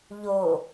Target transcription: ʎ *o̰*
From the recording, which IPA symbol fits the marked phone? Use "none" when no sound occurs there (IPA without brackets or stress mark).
o